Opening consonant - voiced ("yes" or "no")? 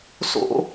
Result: no